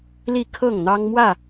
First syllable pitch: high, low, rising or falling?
falling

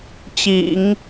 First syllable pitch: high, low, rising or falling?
low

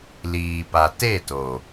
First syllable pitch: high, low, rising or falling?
low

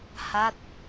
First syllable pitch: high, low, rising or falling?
falling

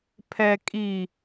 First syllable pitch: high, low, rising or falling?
low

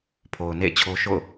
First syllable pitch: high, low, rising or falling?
low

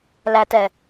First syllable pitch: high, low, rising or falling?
low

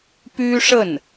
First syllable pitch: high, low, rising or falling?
high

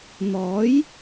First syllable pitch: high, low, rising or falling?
rising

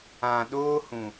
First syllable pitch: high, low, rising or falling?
low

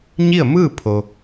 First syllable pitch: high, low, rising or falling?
falling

